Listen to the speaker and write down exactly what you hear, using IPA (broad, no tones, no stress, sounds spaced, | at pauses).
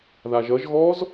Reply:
ð a ʒ ʌ ʒ ɣ ɔ z